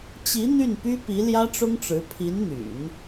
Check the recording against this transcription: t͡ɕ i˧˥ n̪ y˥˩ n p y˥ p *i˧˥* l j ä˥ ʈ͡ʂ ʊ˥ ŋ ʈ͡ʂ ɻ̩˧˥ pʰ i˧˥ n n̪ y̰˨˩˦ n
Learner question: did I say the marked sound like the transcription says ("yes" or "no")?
yes